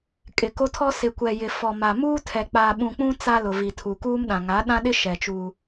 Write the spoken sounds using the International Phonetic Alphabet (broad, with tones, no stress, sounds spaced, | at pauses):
kʼ ɪ˨ k o˦ tʰ ɔ˦ s ɪ˨ kʷ ɛ˨ j ɪ˨ f ɔ˨ m a˨ m uː˦ tʰ ɛ˨ k͡p aː˨ ɓ ũ˨ k͡p ũ˦ t͡s a˦ l ʊ˨ v i˨ tʰ u˨ k uː˦ m ɗ ã˨ ŋ a˨˦ ɗ ã˦ ɗ ɪ˦ ʃ ɛ˨ t͡ʃ u˦